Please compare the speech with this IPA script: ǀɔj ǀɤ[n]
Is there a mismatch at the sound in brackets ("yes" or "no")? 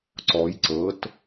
yes